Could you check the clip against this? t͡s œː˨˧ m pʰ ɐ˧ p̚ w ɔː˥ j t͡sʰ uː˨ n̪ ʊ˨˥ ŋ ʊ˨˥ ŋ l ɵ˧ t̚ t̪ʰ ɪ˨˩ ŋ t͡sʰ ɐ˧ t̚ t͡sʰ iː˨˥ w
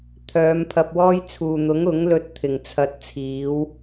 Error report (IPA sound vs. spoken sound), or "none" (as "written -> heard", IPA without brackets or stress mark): t͡s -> t̪ʰ